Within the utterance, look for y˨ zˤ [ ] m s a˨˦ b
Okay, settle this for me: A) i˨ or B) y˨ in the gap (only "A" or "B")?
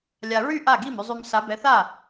B